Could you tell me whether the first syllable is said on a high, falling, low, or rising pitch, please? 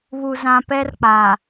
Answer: low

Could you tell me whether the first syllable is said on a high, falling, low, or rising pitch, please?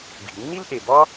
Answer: low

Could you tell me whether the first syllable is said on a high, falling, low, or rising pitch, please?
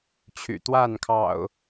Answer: low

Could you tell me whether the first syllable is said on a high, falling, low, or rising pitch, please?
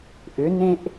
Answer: rising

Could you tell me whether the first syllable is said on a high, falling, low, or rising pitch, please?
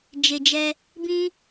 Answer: low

